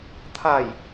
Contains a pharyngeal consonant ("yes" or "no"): no